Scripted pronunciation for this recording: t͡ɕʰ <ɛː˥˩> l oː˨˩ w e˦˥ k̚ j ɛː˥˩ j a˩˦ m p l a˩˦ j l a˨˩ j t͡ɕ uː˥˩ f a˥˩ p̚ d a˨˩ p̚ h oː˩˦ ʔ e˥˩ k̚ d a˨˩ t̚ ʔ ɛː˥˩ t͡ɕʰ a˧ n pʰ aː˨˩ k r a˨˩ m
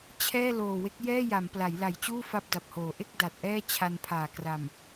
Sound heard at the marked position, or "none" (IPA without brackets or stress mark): ɛː˥˩